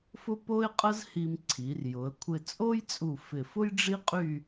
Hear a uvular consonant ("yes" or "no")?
yes